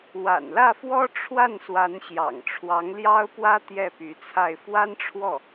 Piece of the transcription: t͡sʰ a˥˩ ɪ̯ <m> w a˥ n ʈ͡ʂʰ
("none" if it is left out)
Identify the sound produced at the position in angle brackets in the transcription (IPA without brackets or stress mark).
f